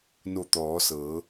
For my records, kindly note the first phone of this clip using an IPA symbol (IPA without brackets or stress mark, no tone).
n